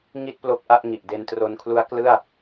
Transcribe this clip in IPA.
ŋi˥˩t̚ plo˦˥k̚ʔa˥˩ʔŋi˨˩ʔ de˧ntro˧nkʰlu˦˥a̯ klɯ˥˩a̯

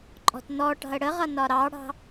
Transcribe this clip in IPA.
ǃʼɔ̤tnɔʈɑ̤ə̯ ɽəʁʌ nɒɾɑɽɑ̤

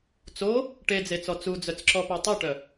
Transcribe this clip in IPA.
t͡so | ʈed͡zet͡sɔ t͡sud͡zœt͡sǁɔpœ tˤoʈœ

